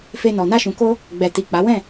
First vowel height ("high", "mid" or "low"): mid